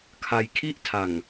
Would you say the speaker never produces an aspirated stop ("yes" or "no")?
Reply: no